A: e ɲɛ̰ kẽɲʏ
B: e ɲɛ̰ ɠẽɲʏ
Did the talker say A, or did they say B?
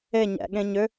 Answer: B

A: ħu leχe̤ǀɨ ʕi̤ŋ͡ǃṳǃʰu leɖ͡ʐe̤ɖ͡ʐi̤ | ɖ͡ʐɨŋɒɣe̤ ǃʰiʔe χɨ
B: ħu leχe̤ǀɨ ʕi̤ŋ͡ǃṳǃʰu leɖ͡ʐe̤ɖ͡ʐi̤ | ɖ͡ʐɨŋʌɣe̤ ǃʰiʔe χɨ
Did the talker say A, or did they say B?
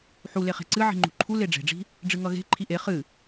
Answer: B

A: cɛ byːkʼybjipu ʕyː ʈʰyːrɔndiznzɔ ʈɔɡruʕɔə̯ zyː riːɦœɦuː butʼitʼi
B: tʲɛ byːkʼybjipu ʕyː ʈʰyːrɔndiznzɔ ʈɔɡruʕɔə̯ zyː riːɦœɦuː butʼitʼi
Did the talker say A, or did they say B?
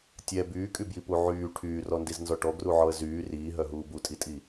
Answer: B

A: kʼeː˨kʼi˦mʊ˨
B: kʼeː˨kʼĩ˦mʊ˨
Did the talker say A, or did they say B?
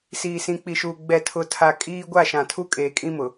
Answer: B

